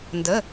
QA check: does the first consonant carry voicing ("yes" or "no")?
yes